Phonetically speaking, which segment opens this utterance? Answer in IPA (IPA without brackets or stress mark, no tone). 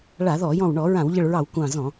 ɭ